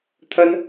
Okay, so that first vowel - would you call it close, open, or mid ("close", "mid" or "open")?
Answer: open